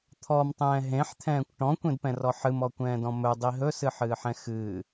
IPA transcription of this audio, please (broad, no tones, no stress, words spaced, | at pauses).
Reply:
t̪ʰɔmtˤɛ̃ː ɦẽħt̪ʰɛ̃ːkʷ ʈɔ̃kʷẽdpɛ̃rɔ ħɨmɔkʷɛ̃ːdɔ̃ mɵdˤi ɦɵsɨħɨːħɛ̃ xɨː